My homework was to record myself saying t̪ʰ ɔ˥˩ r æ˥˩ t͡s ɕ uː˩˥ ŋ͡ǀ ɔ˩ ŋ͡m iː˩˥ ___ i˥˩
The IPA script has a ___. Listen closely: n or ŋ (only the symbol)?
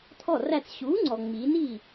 n